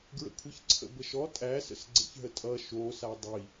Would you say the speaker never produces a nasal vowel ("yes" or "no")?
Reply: yes